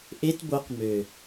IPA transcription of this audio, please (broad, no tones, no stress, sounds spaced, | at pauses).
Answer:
ʔ e t b o q m ø